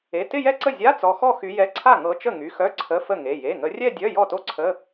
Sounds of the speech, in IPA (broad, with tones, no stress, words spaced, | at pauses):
e˩˧˩ tɪ˥˧jɛ˥˩ǀə˥˩ zʲa˧˥˧ t͡sɔ˨˦xɔ˥˧xy˨˦jɛ˧˥˧ ǀʰa˥˩ŋɤ˨˦t͡ʃə˥˩ ŋy˩˧˩xœ˧˥˧ ǀʰə˧˥˧fə˥˩ŋe˩˧˩ je˩˧˩ŋə˨˦rʲɛ˥˧dʲœ˧˥˧ jɔ˥˩to˥˩ǀʰə˧˥˧